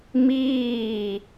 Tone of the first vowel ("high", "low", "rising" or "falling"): falling